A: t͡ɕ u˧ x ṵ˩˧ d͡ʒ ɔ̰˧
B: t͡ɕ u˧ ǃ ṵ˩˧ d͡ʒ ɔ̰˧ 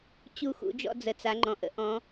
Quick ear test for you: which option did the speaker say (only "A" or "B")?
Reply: A